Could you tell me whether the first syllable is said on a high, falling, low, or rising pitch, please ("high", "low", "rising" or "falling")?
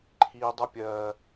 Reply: high